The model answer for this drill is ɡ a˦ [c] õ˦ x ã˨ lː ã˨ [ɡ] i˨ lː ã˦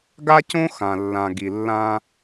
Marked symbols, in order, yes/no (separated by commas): yes, yes